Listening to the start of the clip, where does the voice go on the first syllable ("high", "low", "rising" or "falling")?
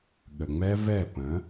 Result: low